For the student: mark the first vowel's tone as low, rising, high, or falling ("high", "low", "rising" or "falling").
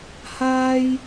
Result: high